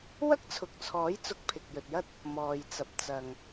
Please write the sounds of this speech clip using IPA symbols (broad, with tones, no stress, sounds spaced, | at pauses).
w ɐ˥ k̚ t͡sʰ ʊ˨ k̚ t͡sʰ ɔː˨˥ j t͡s ʊ˧ k̚ pʰ ɪ˨ k̚ j ɵ˨ t̚ j ɐ˥ t̚ | m ɔː˨ j t͡s ɐ˨ p̚ t͡s ɐ˨ ŋ